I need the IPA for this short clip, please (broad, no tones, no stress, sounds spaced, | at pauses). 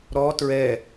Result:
ɾ ɔ t ɹ ɛ